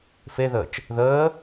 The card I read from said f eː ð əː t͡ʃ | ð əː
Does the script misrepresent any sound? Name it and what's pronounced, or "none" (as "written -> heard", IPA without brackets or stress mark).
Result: eː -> e